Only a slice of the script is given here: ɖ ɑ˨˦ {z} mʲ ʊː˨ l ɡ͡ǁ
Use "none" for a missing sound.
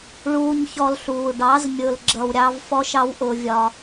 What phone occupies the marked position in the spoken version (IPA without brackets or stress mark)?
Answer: z